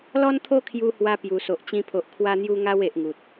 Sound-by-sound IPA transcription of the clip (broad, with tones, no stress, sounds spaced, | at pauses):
l ɔ˦ n t̪ʰ o˦ kʰ j u˧ h w a˧ p j u˨˩ s o˨ ʔ t͡ɕ ĩ˧ pʰ o˨ ʔ kʰ w a˧ n̪ j u˧ ŋ a˧ w e˨ ʔ ŋ u˨ t̚